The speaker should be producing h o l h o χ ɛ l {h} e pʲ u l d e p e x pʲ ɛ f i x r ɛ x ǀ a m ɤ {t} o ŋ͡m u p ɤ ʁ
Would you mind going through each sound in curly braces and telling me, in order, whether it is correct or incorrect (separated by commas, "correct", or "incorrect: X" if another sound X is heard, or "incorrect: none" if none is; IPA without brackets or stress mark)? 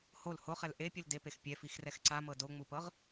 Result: incorrect: ʔ, incorrect: d